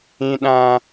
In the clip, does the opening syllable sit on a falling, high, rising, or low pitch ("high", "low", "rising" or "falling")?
high